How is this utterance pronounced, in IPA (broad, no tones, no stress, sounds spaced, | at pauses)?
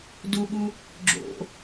d u ɠ u | ɡ͡ǁ o̰